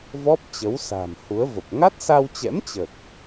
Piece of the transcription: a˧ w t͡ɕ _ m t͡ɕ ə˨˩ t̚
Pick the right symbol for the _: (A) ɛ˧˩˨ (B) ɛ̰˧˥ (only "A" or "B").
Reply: B